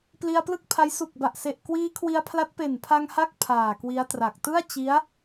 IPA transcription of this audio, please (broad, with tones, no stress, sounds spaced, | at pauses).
p l i˧ a̯ p l ɯ˥˩ k̚ pʰ a˦˥ j s u˨˩ k̚ b a˨˩ ʔ s e˨˩ ʔ k w iː˦˥ kʰ w i˧ a̯ pʰ l a˦˥ t̚ p e˨˩ n pʰ a˧ ŋ h a˦˥ k̚ pʰ aː˨˩ k w i˦˥ a̯ t r a˨˩ k̚ t ɯ˥˩ a̯ t͡ɕ i˦˥ a̯